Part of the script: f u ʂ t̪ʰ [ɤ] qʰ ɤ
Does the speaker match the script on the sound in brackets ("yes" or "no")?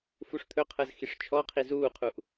no